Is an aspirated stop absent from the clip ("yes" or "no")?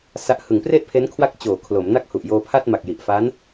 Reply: no